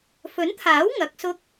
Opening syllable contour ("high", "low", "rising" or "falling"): rising